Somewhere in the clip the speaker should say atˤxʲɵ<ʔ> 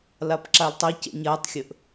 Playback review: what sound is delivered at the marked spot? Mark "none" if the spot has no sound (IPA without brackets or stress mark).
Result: ʔ